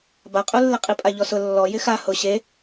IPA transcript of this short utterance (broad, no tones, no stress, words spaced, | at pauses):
baqʼulːɪqʼi pʼaʎɔsʊ lːɔ jɪxa hʊ ɕe